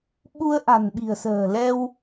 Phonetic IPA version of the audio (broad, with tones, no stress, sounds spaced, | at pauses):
ɓ u˧ ə̯ ʔ a̤˨˩ n ɓ i̤˨˩ ə̯ s ə̤ː˨˩ l ɛ˧ w